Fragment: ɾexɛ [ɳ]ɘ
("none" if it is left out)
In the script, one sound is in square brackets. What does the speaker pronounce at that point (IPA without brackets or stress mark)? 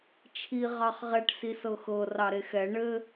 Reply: ɳ